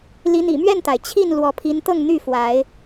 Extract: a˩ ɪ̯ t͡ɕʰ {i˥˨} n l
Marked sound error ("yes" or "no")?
no